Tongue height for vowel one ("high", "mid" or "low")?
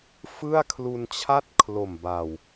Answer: high